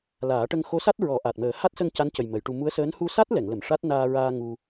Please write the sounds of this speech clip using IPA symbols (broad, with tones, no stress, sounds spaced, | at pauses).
l aː˨˩˦ ʈ ə˧ ŋ x o˧˥ s a˦˥ t̚ ɹ ɔ˨˩˦ ʔ a˨˩ t̚ m əː˨˩˦ h a˦˥ t̚ s ə˧ ŋ c a˧˥ n c ə˨˩ j m ə˨˩˦ j ʈ u˧ m u˧˥ ə̯ s əː˧˥ n h u˧ s a˦˥ t̚ l ɛ˨˩˨ ŋ l ə˨˩˨ m ʂ a˦˥ t̚ n aː˧ ɹ aː˧ ŋ u˧